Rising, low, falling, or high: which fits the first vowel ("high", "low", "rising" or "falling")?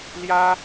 high